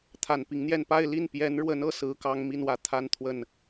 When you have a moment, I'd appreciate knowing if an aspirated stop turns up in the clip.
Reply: yes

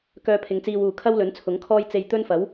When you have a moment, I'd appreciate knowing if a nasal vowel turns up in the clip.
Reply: no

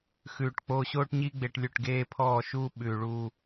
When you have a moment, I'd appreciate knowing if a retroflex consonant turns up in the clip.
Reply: yes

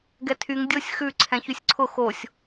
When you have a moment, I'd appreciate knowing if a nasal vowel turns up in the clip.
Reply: yes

